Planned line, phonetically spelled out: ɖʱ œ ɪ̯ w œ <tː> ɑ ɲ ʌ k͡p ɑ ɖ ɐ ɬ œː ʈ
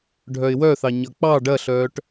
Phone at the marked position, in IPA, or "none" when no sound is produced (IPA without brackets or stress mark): θ